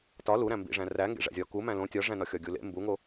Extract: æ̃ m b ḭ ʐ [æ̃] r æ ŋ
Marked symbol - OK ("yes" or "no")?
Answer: yes